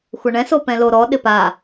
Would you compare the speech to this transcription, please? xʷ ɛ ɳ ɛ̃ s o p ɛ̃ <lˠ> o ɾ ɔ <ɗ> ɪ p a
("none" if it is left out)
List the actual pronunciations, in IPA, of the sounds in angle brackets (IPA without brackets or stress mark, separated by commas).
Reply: l, ɗ